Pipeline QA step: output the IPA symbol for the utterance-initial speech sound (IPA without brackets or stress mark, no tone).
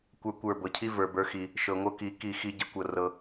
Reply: kʷ